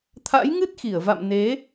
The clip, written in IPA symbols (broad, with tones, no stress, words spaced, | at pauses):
t̪ʰa̰˧˥jŋɨ˦˥t̚xi˧˩ə̯va̰˧˨m ne˨˦